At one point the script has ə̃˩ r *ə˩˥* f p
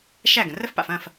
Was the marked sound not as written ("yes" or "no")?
yes